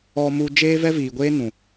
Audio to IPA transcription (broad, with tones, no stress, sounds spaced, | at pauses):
ɔ˧ m u˧ d͡ʒ eː˦ v ɛ˦ v iː˨ ɡʷ eː˦ n ũ˨